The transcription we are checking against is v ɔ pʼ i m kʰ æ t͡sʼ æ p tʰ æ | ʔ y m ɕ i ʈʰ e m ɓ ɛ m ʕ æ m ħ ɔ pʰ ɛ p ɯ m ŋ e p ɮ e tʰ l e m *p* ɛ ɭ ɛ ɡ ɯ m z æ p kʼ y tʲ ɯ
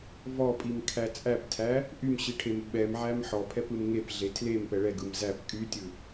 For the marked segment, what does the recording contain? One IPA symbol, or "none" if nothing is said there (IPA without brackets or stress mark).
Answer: p